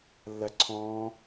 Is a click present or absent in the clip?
present